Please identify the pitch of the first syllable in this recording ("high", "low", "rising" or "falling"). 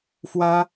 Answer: high